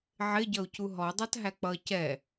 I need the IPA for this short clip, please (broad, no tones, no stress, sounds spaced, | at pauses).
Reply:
ʕ ɪ ɟ ʌ u̯ c u ɦ ɔ dˤ ɑ t ɦ æ k͡p ʌ c ɛ